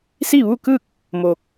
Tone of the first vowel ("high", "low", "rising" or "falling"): falling